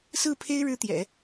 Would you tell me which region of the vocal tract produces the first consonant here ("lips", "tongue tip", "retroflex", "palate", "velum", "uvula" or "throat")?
tongue tip